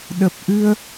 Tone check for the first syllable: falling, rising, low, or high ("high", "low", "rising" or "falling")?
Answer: low